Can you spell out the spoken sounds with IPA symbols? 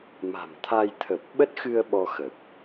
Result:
m a̤˨˩ m t̪ʰ a˧ j t̪ʰ ə˨˩ p̚ ɓ ə˦˥ t̚ x ɨ˧ ə̯ ɓ ɔ˧ x ə˨˩ p̚

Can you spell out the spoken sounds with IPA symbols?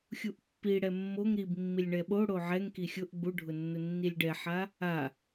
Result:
xʲ u ʔ pː i ɽ ɛ mː o ŋ ɾ i b mː i lʲ ɳ ɛ ɓ o ɽ o ʕ ɛ ŋ k i xʲ ʊ ʔ ɡ͡b u ɖʱ ʊ nː ʊ nː i lʲ ɖ ɛ ħ a | a

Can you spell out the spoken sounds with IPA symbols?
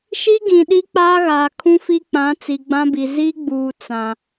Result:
ʃ i˦ ɡ ĩ˨ ɗ i˦ k͡p aː˦ ɣ aː˨ kʰ ũ˦ f i˦ k͡p ã˨˦ t͡s i˨ ɡ͡b ã˦ b i˨ z i˦ ɡ͡b uː˨ t͡s ã˨

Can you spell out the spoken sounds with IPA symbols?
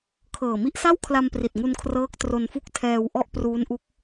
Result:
kʰ ɤː˨˩ m i˥˩ ʔ s a˥˩ w kʰ l a˧ m p r i˨˩ t̚ ŋ u˧ n kʰ r ɤː˦˥ k̚ t r o˧ n f u˥˩ k̚ tʰ ɛː˧ w ʔ ɔ˥˩ ʔ p r uː˦˥ n ʔ u˦˥ k̚

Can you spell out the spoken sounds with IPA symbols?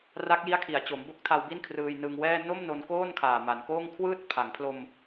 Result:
r a˦˥ k̚ j i˦˥ a̯ kʰ i˩˦ a̯ t͡ɕ o˩˦ m b o˦˥ k̚ tʰ a˧ w b i˥˩ n kʰ r ɯː˧ j n ɯ˧ ŋ w ɛː˥˩ n o˥˩ m n o˧ n k oː˥˩ n kʰ aː˨˩ m a˩˦ n k oː˥˩ ŋ kʰ w ɯː˥˩ t̚ pʰ a˩˦ ŋ pʰ l o˧ m

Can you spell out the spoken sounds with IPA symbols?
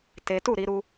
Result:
t e˦ t u˦˨ ɾ i˧ ɾ u˦

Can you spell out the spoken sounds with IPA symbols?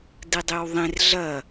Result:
d ɨ dˤ e w ðˤ ẽ r ɮ ɐ

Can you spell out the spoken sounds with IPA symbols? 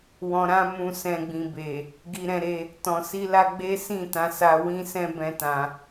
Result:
w ɔ̃˨ ɾ ã˧ m ũ˨ s ɛ̃˨ ɡ͡b ĩ˨ b e˨ | ɡ i˧ ɾ ɛ̃˧ ɾ e˧ | t ɔ̃˨ s i˧ l a˧ ɡ͡b e˦ s ĩ˦˨ t ã˧ s a˧ w ĩ˦ s ɛ̃˦ b ɛ̃˦ t ã˧

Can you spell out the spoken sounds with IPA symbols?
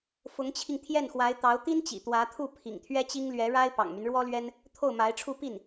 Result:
f ʊ˧˥ ŋ t͡ɕʰ i˧ ŋ t̪ʰ j ɛ˥˩ n x w a˧˥ ɪ̯ t̪ ɑ˧˥ ʊ̯ t̪ i˥ n t͡ɕ ḭ˨˩ t̪ w ä˧˥ t̪ʰ u˥˩ pʰ ḭ˨˩ ŋ t̪ʰ ɥ ɛ˥ t͡ɕ i˥ ŋ l ɥ ɛ˧˥ ɻ a˥ ɪ̯ p ɑ̰˨˩ ŋ m y˦ n ɻ w ɔ˥ l ɥ ɛ˥ n | t̪ʰ o˥˩ ʊ̯ m a˧˥ ɪ̯ ʈ͡ʂʰ u˥˧ p i˥˩ n

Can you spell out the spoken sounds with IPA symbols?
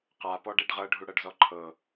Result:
q a p ɔ ɖ e ɖ ʁ ɤ ɖʱ u ɽ ɤ ɖ z ɔ ǃʰ ɤ

